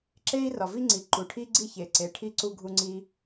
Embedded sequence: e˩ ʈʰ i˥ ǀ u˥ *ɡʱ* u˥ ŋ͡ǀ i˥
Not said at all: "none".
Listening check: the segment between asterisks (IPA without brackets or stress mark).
ɡʱ